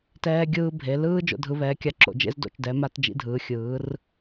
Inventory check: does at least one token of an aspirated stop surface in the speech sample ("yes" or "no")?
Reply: no